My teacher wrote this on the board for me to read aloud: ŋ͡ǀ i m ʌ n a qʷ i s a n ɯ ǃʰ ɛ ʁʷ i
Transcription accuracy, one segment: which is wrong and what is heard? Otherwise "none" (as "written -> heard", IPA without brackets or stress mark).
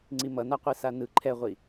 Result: none